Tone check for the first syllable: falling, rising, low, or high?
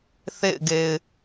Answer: falling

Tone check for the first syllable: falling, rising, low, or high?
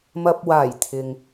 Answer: low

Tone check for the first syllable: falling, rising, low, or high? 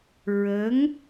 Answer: rising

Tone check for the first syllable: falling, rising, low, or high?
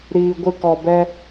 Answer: low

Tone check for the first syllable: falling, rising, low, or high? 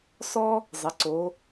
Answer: high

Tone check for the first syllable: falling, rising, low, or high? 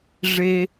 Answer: high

